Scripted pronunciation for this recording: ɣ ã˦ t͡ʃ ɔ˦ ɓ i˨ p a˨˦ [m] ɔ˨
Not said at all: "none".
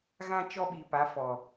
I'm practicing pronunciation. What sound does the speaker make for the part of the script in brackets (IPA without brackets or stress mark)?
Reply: f